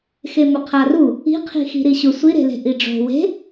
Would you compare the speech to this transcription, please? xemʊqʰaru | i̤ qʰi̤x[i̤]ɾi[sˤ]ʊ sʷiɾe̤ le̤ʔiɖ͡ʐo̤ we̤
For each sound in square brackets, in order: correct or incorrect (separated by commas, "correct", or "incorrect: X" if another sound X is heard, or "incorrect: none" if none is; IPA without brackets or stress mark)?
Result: correct, incorrect: ɕ